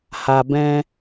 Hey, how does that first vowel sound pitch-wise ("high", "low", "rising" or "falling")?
low